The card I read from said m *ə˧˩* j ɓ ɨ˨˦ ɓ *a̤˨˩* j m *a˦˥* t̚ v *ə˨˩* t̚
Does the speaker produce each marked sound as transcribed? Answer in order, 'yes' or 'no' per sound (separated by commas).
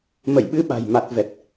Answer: yes, yes, no, no